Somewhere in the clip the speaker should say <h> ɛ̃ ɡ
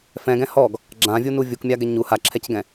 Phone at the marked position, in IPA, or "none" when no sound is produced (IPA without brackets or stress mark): f